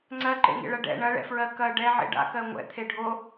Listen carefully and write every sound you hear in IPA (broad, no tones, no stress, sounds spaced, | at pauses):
ŋ͡ǀ ɜ ǃ ḛ ŋ ḛ ɭ ɐ ɖ ɛ̰ ɳ ɐ ɭ ɛ̰ f ɹ ɜ k ɐ ɖ ɛ ʕ ḛ ɖ a̰ k ɜ ŋʷ ɛ̰ t̪ʰ e ɖʱ o